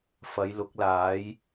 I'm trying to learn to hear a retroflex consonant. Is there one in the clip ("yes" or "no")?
no